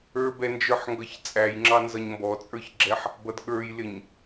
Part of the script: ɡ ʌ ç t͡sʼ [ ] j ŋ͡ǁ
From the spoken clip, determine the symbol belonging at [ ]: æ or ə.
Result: æ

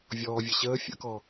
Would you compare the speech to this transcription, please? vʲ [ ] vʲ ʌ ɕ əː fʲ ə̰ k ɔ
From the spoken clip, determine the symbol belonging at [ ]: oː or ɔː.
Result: ɔː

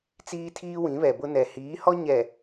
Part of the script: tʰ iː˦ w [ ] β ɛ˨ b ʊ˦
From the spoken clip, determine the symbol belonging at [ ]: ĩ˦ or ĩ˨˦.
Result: ĩ˨˦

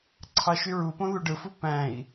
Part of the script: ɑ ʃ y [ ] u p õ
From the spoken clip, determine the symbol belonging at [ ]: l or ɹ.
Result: ɹ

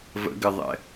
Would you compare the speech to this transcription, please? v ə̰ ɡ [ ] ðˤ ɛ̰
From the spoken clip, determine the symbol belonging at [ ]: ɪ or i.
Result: ɪ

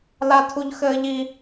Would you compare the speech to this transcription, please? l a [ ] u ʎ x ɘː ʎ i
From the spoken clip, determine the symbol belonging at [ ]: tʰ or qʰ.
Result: tʰ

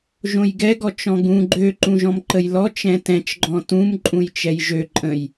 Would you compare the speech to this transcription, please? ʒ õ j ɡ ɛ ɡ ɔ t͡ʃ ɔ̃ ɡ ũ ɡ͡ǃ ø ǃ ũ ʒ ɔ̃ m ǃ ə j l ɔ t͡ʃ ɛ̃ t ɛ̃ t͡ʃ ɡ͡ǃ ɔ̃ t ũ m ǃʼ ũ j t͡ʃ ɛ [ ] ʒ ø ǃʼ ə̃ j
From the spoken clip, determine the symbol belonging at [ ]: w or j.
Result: j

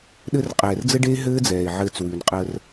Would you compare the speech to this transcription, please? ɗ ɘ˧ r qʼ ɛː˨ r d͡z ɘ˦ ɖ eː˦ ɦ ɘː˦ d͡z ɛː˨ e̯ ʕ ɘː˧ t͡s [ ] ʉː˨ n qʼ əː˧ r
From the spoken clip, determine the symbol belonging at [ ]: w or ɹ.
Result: w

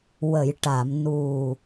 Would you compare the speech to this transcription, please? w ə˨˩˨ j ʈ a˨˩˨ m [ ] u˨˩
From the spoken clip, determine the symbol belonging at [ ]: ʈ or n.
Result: n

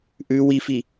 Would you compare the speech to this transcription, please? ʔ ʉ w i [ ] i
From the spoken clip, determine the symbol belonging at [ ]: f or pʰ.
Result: f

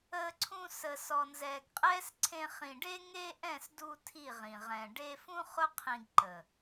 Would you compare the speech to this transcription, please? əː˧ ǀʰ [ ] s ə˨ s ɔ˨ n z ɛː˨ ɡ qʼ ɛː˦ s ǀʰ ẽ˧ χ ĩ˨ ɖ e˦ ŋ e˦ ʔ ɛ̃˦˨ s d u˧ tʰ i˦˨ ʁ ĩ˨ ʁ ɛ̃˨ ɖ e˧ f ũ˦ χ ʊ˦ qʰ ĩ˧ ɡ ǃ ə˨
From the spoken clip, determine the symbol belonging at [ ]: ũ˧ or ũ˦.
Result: ũ˧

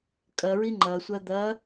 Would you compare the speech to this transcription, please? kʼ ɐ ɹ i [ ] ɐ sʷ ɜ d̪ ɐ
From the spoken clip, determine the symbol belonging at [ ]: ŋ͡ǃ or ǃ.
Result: ŋ͡ǃ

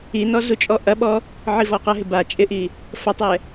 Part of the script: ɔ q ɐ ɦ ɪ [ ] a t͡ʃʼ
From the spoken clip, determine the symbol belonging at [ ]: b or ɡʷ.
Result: b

